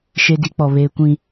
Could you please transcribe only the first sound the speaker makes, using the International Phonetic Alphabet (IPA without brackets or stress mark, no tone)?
ʃ